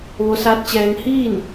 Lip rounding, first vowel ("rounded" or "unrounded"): rounded